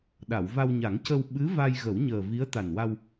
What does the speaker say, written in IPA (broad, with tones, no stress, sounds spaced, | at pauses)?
ɗ a˨˩˨ w v a˧ w ɲ a˨˩˦ ŋ c ə˧ w ɓ ɨ˧˥ v a˧ j ɣ ə˨˩˦ w ɲ əː˨˩ v i˧˥ ə̯ t̪ a˨˩ n w a˧ w